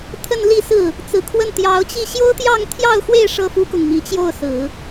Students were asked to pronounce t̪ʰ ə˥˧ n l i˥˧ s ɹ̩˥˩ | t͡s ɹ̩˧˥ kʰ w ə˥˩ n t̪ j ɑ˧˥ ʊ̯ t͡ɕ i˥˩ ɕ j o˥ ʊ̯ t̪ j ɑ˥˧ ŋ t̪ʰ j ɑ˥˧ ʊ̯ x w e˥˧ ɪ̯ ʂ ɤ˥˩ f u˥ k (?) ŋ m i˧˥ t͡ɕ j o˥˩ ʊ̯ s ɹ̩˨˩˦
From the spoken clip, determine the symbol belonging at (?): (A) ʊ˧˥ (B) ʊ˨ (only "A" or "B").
B